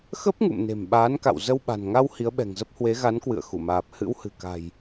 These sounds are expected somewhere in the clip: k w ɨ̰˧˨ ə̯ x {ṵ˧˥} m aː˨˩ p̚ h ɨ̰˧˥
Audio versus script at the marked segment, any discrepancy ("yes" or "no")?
yes